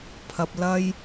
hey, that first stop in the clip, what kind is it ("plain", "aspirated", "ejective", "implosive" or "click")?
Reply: aspirated